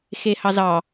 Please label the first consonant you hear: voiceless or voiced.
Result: voiceless